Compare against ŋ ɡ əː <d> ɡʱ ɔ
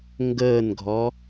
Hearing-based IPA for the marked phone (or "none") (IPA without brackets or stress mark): n